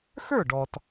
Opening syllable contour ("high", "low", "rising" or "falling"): falling